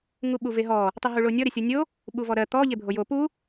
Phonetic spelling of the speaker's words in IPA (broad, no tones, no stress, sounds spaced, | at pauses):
ŋ u ɓ u v e ɦ ɔ | tˤ i ɦ u ɭ o nʲ ɔ ɾ e sʲ ɔ nʲ o | ɓ u v ɔ ɾ ɜ t̪ ɔ ʎ e bʱ o j o p u